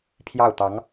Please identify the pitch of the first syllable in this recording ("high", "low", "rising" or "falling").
falling